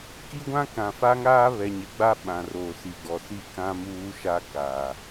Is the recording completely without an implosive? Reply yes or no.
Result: no